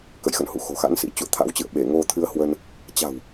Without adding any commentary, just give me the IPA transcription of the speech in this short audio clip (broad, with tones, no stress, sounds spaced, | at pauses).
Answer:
k ə̰˧˨ j x ə̰˧˨ n h ṵ˧˨ x o̤˨˩ x a̰˧˥ n s ḭ˧˥ t͡ɕ ṵ˧˨ ə̯ t̪ʰ a̰˧˥ w t͡ɕ ɨ̰˧˨ ə̯ ɓ e˧˩ ŋ o˧ t̪ʰ ɨ˧ ə̯ h w ə˧ n | t͡ɕ a̤˨˩ w